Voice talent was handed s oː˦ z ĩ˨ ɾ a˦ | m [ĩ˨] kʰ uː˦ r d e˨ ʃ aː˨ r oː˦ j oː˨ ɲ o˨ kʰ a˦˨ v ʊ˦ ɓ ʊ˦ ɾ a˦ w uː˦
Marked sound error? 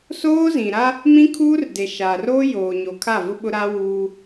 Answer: yes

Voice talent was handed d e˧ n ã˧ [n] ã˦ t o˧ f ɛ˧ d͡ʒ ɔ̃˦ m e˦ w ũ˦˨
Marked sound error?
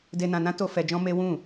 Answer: no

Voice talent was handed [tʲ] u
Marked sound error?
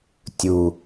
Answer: no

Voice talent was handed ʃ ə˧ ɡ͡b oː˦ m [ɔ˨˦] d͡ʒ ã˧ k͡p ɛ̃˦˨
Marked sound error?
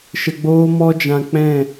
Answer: yes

